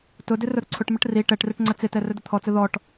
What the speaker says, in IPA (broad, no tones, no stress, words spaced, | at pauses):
tʊdɪ rʊɾʊǀʰʊʈməʈ ri ʈɛʈrɪʈ ŋ͡ǀət͡sɪtɛ rɵdət̪ʰɔt͡sə ðɔʈ